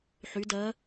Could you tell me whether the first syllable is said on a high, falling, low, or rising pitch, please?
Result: rising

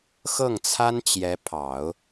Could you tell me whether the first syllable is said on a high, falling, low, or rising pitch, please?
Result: falling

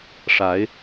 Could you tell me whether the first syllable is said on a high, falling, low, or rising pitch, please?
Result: rising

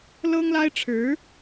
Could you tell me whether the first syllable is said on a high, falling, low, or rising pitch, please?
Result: high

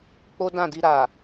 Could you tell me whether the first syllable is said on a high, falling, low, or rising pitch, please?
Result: high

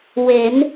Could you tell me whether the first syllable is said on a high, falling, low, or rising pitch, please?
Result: rising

